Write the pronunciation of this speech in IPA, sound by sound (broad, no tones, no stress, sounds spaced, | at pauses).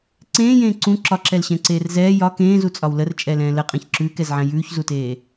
ǀ ẽː j ẽː ǀ ũ ǁ ɒ ǁ ɛ l ɕ ɛ̃ ǀ eː r z ɛː j ɒ k ẽː z u t͡sʼ ɒ w l ə r t͡ʃʼ ɛ l ɛ̃ː l ə qʼ ɛ̃ ç ǁ ʉː k ɛ z ʕ ɛ̃ j ʉː ç z u t eː